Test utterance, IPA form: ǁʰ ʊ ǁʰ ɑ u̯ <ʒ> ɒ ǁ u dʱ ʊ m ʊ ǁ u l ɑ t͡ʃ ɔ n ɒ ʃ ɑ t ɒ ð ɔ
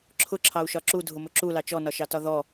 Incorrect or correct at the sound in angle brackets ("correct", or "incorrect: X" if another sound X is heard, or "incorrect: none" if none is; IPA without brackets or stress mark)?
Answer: incorrect: ʃ